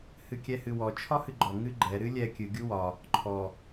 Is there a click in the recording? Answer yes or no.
yes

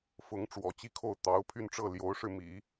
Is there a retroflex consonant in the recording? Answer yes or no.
yes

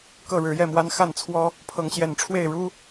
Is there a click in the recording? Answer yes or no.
no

